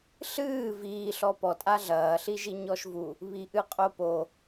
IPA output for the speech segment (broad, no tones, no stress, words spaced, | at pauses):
ɬɨː viː ɬɔpɔtʼa ɮɐːɬiʒi ɲɔʃvu | βiʔɨqʼopo